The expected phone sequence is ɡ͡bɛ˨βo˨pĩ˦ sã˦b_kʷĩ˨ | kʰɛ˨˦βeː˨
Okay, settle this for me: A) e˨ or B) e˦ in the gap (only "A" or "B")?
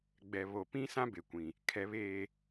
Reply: A